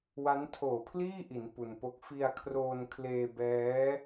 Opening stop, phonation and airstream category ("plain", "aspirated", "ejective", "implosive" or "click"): aspirated